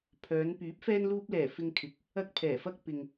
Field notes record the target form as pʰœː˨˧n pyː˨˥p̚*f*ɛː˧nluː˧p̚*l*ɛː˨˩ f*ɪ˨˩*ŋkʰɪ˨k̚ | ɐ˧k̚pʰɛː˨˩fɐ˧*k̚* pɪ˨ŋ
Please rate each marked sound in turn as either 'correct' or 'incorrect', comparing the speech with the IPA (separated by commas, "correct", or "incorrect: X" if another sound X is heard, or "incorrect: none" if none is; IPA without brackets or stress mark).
correct, correct, incorrect: ɪ˧, correct